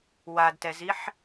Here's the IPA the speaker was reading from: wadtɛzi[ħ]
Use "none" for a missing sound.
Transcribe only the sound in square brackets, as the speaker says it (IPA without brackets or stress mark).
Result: ħ